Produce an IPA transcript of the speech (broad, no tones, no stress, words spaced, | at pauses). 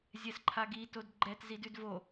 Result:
zʲɛsǃʰaɡi todɡ͡ǃɛt zidʉdvo